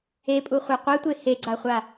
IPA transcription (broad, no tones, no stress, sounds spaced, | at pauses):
e pʼ u χʷ ɛ qʷ ɛ tʷ e h e ɡ͡ǀ a χʷ a